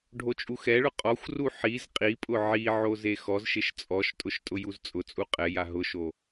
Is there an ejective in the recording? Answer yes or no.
yes